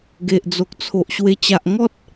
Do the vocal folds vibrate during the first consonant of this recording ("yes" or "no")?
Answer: yes